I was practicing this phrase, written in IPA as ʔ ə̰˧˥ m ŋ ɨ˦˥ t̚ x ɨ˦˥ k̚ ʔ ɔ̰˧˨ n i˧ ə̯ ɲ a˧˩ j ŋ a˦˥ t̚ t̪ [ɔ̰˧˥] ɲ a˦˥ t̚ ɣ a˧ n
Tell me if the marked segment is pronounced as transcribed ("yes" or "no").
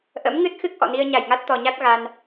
no